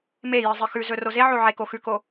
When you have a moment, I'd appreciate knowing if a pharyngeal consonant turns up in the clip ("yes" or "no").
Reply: yes